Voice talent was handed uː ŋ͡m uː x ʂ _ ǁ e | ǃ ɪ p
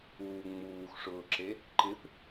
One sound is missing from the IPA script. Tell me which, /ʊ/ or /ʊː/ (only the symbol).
ʊː